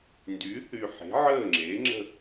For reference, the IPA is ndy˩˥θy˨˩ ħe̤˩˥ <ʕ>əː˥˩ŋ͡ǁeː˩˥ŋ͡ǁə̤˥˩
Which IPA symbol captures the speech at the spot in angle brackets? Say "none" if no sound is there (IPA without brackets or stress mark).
ʕ